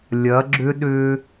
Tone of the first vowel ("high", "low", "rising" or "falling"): rising